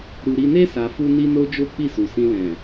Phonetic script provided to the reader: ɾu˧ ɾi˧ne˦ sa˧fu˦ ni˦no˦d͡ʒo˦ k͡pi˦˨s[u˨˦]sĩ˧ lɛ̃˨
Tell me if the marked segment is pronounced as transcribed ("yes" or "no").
no